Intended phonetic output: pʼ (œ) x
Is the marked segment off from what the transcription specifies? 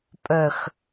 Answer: no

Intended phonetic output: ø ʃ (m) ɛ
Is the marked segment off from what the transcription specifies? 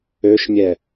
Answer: yes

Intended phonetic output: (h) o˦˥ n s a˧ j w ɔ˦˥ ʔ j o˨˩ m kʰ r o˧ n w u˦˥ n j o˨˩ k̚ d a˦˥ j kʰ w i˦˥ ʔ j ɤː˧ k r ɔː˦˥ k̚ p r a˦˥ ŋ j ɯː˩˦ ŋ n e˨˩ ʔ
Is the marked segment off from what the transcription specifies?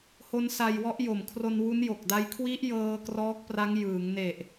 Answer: no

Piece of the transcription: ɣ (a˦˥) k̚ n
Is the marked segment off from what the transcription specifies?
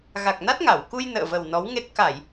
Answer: yes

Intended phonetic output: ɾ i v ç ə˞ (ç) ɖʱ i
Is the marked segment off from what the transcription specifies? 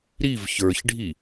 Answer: no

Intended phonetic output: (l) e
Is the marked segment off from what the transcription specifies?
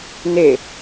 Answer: yes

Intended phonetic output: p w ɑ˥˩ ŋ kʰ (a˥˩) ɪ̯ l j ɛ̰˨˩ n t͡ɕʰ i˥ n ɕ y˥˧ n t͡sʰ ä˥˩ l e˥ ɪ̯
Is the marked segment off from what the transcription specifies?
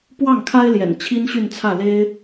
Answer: yes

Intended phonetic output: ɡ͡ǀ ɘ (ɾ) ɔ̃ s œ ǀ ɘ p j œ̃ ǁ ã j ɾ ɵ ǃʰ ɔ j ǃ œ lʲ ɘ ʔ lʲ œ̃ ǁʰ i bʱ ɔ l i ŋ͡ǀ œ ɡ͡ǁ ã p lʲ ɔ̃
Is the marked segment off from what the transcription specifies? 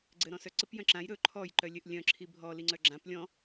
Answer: no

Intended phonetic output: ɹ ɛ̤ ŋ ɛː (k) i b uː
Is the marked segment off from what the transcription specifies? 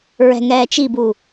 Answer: yes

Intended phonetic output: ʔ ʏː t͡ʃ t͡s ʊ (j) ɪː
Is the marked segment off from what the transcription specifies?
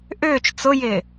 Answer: no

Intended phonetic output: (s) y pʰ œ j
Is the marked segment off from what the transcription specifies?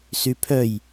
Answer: no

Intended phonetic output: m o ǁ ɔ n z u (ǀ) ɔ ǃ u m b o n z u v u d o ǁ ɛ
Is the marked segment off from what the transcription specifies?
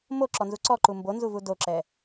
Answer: no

